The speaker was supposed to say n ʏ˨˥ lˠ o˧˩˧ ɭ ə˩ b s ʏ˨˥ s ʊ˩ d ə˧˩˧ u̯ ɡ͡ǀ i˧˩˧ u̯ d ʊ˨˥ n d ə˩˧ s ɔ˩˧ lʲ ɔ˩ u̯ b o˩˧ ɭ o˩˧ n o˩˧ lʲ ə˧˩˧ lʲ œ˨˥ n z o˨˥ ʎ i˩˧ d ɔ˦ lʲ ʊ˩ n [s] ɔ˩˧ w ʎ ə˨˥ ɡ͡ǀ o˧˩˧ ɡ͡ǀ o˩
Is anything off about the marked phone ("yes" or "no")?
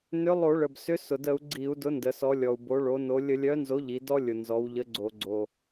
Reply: yes